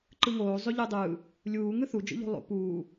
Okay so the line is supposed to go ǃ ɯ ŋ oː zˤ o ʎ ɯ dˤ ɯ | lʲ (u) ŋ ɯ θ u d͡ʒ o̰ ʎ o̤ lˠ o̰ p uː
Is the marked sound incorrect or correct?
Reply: incorrect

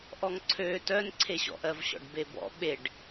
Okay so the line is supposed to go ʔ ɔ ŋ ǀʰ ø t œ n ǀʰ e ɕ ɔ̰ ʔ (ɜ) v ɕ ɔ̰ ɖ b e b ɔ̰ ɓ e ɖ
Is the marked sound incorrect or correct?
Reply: correct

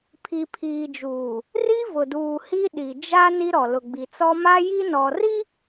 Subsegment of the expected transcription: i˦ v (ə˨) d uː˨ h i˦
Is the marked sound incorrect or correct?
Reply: incorrect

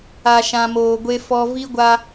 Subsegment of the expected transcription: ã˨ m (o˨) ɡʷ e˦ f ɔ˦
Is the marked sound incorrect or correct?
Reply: incorrect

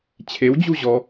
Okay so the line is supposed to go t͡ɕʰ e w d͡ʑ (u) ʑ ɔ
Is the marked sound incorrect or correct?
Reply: correct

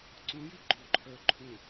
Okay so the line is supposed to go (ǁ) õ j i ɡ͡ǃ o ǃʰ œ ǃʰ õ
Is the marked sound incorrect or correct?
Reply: incorrect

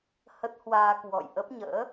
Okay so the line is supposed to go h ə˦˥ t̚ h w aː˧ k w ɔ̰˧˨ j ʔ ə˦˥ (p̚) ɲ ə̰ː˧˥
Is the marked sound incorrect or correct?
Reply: correct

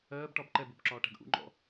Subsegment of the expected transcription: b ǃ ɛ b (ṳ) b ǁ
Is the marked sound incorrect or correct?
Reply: incorrect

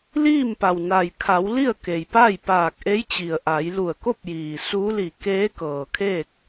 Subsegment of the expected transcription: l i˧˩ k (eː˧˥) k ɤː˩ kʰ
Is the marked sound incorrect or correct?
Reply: correct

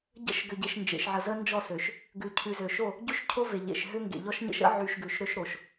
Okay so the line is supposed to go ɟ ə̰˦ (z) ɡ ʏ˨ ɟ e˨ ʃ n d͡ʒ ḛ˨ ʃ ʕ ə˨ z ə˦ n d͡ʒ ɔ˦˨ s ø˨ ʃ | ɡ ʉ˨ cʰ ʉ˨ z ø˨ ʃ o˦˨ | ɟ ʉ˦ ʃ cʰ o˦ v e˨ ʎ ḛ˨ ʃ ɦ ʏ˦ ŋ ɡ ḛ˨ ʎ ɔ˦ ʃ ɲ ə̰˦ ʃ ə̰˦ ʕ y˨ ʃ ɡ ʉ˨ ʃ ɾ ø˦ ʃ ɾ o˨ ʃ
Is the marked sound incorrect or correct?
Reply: incorrect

